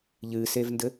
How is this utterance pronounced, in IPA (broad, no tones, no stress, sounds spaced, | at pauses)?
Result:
ʎ ɨ s e v n d ɘ